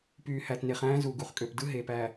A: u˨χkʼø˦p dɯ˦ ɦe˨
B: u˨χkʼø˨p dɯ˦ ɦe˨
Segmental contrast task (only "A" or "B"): B